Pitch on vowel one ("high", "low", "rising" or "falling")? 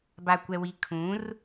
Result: low